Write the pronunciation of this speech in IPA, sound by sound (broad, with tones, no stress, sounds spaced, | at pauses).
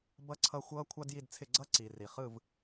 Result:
b ʌ˥ ǀʰ ʌ˥˨ xʷ ʌː˥ kʷʰ ɑ˥ d j i˥˨ d t͡sʰ ɪ˥˨ ɡ͡ǀ ʌ˥ ǀ i˨ r i˨ χ ɯ˥˨ v